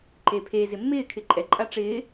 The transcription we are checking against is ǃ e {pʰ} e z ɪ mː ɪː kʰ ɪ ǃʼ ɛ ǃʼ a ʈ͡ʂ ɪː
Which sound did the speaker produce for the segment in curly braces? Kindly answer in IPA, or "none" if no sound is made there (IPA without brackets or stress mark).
pʰ